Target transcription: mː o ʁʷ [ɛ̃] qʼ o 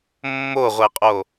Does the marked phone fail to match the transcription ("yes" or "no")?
yes